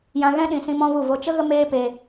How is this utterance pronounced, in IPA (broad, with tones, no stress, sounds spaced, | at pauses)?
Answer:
j ã˧ ɣ ɛ̃˦ ɗ ĩ˨ s ĩ˧ m ɔ̃˦ v u˦˨ v o˦ t͡ʃ ə˦ ɣ ə˦ m eː˦ p e˧